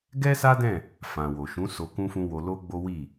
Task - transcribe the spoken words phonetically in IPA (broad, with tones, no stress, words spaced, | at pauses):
ɡɛ˦ sa˦dɛ̃˦˨ | fã˨wo˨ʃũ˨˦ so˧kũ˦fũ˦ wo˧lo˦ɡ͡bo˦ wi˦˨